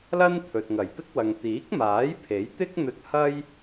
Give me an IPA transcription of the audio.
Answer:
l ɐ˥ n t̪ʰ ɵ˨ t̚ ŋ ɐ˨˩ j p ɪ˥ k̚ w ɐ˨ ŋ t̪ iː˨˥ k̚ m aː˨˥ j pʰ e˨˥ j t̪ ɪ˥ k̚ n̪ ɵ˧ t̚ h ɐ˥ j

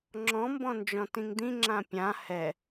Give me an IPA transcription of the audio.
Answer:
ŋ͡ǁ ɔ̃ m b ɔ̃ n d͡ʒ ɔ̃ t ĩ ŋ d̪ ĩ ŋ͡ǁ ã pʲ ã h ɛ

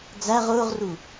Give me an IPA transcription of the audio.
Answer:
d͡z æ ʁ ʊː ʁ r u

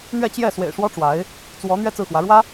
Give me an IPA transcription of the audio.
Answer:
n̪ ɥ ɛ˥˧ t͡ɕ j ɛ˥˩ s w ḛ˨˩ ɪ̯ ʂ w ɔ˥ ʈ͡ʂ w a˧˥ ɪ̯ | t͡s w ɔ˧˥ n̪ ɥ ɛ˥˧ t͡s ɹ̩˥˩ x w ä˧˥ ɻ w ä˥

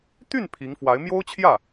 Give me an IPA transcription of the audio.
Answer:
t̪ y˥˩ n pʰ i˧˥ ŋ f w a˧˥ ɪ̯ m j o˥ ʊ̯ t͡ɕʰ j ä˥˩

